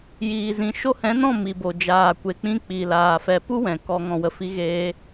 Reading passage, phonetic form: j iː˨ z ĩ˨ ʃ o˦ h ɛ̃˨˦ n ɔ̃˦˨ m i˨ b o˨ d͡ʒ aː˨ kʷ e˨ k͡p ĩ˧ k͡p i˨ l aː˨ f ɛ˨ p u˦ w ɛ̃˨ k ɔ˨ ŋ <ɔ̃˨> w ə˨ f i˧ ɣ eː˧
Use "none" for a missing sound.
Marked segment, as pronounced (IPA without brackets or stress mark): ɔ̃˨